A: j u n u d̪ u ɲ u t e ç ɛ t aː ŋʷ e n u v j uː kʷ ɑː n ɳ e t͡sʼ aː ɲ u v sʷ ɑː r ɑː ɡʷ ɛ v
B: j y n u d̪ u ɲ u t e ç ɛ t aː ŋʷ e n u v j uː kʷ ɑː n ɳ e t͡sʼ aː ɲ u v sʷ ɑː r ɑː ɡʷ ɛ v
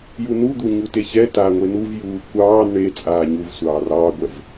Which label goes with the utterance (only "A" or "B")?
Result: A